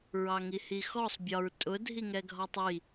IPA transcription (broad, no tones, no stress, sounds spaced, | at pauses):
ɹ ɑ ŋ i h i x ɔ sˤ bʲ ɒ ɹ tʼ ʊ dʱ i ŋ ɛ ɡʱ ɒ tˤ i